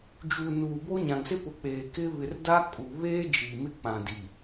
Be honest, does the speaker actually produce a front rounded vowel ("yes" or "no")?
no